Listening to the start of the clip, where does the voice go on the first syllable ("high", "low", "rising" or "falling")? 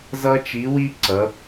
high